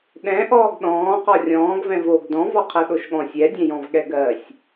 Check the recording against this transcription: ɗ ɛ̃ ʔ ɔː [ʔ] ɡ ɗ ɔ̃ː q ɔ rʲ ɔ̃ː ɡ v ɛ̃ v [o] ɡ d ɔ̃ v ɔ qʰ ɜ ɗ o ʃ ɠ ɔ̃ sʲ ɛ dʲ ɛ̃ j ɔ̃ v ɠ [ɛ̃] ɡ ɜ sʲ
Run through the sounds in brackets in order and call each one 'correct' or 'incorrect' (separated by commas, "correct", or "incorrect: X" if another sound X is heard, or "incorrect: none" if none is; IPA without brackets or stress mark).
incorrect: none, incorrect: oː, incorrect: ɛ